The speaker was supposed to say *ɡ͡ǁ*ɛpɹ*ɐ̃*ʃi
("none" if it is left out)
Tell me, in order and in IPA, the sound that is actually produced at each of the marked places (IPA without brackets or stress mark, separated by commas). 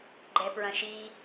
ɡ͡ǃ, ɐ̃